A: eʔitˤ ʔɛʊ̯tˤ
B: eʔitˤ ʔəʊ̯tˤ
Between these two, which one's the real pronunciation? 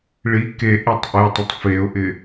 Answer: B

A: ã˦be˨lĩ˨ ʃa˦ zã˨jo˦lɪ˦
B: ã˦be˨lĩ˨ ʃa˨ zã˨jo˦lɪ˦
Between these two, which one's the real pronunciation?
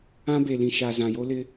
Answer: B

